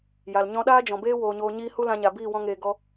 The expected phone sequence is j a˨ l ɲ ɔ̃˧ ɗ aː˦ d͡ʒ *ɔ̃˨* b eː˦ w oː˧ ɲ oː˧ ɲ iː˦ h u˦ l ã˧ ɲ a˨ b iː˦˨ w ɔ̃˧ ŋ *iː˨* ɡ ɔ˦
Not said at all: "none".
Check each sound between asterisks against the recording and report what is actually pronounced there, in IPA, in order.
ɔ̃˨, eː˨

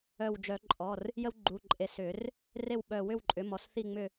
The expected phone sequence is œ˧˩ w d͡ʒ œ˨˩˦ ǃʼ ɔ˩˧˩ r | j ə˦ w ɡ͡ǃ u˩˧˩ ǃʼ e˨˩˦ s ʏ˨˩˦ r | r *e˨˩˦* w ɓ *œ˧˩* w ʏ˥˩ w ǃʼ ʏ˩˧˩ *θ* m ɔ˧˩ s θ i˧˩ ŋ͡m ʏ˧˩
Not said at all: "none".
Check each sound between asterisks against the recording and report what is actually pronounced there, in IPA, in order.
e˥˩, œ˧˩, none

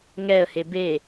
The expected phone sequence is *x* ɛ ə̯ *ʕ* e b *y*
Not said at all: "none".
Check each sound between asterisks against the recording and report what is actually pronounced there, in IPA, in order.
ŋ, h, e

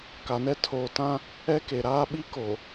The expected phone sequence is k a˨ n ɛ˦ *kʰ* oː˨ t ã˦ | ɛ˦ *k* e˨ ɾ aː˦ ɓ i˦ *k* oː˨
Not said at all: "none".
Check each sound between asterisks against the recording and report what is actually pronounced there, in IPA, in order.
tʰ, k, k

